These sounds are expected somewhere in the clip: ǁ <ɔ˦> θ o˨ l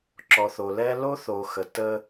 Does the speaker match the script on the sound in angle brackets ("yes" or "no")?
no